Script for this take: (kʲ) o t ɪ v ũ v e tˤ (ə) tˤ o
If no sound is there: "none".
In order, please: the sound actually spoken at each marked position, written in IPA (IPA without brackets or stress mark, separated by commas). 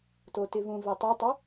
t, ɛ